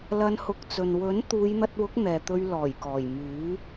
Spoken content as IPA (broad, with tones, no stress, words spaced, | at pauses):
lɐ˧nhʊ˨˥k̚t͡sɵ˨n wɵ˨˥n t̪uː˨˧jn̪ɐ˧t̚wʊ˨˥k̚ n̪ɛː˨t̪ɵ˧ɥ lɔː˨˩jkɔː˨˩jmyː˨˥